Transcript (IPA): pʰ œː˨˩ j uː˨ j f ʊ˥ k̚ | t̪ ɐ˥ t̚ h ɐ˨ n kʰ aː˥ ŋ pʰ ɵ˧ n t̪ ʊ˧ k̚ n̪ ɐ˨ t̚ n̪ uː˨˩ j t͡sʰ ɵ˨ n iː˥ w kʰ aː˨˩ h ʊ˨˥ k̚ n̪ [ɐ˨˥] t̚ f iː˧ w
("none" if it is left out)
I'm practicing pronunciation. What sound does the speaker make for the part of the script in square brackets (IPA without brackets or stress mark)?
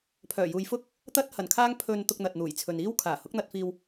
ɐ˧